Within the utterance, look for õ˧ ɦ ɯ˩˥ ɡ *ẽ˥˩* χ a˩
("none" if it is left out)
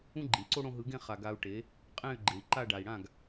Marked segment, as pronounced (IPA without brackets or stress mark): ẽ˥˩